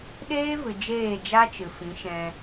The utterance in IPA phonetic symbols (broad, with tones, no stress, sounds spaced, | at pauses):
ɗ eː˦ v ɨ˨ d͡ʒ eː˦˨ d͡ʒ a˦ t͡ʃ ɨ˨ f ĩ˨˦ ʃ ɛ̃˧